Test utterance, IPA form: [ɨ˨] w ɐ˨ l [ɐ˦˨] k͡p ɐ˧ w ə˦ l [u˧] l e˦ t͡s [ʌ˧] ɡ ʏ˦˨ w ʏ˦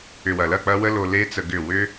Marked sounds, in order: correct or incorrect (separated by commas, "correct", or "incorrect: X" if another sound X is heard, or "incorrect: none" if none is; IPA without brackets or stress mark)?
incorrect: ʏ˨, correct, incorrect: o˧, incorrect: ə˧